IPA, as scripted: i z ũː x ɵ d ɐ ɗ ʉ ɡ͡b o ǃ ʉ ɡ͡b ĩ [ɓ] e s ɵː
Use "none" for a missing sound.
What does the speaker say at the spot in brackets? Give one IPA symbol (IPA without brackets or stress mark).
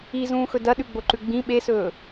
ɓ